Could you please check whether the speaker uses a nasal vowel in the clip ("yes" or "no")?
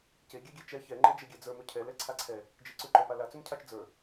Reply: no